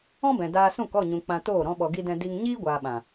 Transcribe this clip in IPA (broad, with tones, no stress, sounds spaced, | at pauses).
ɔ̃˦ b ɛ̃˨ d aː˧ s ũ˦˨ k ɔ˦˨ ɲ ũ˨ k͡p ã˧ t oː˦˨ ɾ ɔ̃˧ ɓ ɔ˨ ɡ i˧ d ɛ̃˧ d i˧ ŋ ɲ iː˦ ɡʷ aː˨ ɓ ã˨